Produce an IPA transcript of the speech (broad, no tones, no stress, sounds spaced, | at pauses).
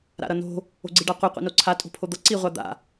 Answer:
ɾ a̰ ɾ ʌ n o̤ | o̤ ɡ͡ǀ i ɖ a qʷ i qʷ ḭ n o ǀʰ a tʼ o̤ pʰ o d̪ ʌ ǀ i ʁʷ a d̪ a̰